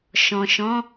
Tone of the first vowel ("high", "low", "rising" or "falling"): low